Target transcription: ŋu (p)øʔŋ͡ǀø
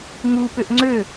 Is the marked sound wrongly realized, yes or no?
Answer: no